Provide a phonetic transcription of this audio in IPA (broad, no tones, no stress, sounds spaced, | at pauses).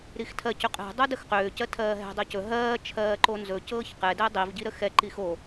ɾ i x tʰ ɜ c ʏ qʼ ɛ̤ dˤ o d ə x q ʏː c ɜ tʰ ɜː ɦ ɛ̤ dˤ ɜ c ɵ ɦ ɜː t͡ʃʰ ɜː ǃ o n z ɵ c ɤː ç q ɛ d ɛ dˤ i v ɟ i ɾ ə x ɛ ǃ i x o